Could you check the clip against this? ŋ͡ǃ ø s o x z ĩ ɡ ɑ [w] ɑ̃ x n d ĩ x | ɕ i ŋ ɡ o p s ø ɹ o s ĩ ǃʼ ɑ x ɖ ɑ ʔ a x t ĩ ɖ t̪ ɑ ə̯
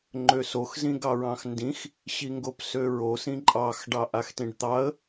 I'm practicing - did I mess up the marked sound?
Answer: yes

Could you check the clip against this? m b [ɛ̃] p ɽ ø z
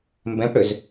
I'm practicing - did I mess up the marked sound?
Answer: no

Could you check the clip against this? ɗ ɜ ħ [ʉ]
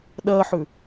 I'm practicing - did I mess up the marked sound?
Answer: no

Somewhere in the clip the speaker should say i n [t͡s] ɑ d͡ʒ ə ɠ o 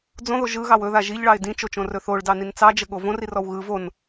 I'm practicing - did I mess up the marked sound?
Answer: no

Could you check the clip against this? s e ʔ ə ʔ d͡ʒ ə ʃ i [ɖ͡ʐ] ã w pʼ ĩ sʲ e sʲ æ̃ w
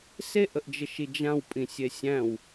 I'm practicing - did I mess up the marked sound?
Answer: yes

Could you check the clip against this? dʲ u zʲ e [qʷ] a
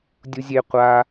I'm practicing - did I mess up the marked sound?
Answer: no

